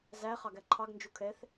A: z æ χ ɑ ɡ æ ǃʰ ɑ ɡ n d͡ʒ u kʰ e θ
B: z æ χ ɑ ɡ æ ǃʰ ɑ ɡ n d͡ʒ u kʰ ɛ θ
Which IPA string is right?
B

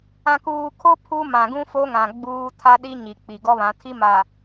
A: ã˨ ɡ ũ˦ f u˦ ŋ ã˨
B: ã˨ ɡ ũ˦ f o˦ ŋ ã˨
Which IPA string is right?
B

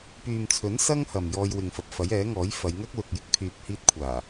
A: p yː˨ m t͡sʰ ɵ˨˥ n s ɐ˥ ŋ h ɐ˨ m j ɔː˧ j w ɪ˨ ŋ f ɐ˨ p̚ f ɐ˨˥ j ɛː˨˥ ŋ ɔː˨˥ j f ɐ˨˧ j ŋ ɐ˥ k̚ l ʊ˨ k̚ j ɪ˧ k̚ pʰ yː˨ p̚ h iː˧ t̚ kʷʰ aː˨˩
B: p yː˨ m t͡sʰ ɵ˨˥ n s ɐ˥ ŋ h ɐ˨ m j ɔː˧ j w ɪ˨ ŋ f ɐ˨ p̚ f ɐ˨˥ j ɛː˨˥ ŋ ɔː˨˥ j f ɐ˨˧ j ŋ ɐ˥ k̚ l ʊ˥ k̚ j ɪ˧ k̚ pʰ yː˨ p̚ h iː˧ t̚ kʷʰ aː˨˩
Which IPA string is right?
A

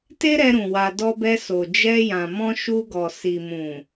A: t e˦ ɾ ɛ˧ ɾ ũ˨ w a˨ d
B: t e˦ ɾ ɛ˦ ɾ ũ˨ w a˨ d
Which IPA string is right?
A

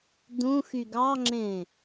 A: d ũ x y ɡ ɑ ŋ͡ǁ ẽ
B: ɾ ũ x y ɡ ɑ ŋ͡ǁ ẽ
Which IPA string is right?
A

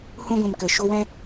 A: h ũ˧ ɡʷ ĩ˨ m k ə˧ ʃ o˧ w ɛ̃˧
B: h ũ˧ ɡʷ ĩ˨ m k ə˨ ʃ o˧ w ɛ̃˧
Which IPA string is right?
B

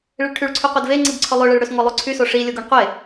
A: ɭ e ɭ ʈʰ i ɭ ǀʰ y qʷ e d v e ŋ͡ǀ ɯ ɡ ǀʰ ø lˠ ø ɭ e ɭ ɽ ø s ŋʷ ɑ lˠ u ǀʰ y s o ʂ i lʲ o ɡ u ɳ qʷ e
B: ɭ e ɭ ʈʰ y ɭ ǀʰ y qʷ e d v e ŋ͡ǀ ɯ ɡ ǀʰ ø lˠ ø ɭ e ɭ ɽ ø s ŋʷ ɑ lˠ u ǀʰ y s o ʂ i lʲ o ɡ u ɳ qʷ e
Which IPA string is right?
B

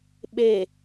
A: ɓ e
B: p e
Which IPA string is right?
A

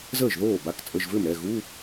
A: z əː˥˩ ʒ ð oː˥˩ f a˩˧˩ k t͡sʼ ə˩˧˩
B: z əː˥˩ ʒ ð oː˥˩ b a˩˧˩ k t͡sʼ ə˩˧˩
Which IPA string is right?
B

